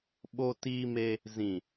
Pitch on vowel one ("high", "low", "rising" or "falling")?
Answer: high